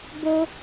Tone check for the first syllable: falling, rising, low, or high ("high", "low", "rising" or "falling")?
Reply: high